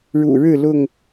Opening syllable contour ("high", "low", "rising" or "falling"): low